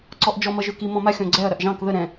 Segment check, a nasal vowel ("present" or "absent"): present